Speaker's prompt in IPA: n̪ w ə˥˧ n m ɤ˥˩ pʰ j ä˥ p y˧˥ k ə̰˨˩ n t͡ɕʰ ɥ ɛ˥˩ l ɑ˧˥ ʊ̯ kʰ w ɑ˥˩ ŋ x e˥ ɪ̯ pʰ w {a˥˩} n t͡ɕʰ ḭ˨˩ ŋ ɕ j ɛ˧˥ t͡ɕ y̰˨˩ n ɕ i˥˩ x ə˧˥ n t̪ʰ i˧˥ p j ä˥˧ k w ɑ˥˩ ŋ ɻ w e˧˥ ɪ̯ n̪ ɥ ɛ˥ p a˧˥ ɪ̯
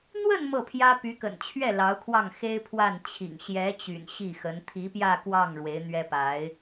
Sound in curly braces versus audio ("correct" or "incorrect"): correct